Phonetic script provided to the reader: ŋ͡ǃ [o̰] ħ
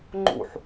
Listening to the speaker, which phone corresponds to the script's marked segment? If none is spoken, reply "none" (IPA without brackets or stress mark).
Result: ṵ